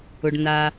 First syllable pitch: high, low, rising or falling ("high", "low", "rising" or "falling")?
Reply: low